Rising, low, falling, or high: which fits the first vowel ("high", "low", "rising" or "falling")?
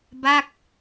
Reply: falling